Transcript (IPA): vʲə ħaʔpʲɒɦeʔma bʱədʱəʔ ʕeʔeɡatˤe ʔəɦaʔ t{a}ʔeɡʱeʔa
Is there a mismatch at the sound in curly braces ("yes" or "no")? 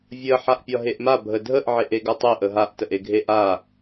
yes